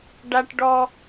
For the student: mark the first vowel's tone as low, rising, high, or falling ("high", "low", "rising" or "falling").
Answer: high